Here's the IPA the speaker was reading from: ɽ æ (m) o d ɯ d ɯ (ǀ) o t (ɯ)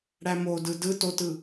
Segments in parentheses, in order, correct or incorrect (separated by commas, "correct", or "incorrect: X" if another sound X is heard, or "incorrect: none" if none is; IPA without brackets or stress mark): correct, incorrect: t, correct